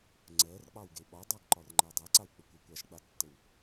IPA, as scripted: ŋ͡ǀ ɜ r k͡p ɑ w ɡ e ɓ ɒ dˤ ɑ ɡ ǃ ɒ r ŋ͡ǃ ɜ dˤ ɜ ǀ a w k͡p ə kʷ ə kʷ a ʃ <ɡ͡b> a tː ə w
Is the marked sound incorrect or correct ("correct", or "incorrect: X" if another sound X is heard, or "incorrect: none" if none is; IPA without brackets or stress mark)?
correct